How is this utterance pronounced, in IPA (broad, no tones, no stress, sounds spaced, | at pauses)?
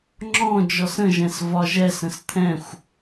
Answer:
ŋ͡ǁ ɔ̃ d͡ʒ ɔ s ə̃ ʒ ɛ̃ s v ɒ ʒ ɛ s ə̃ s t̪ʰ ɛ̃ xʷ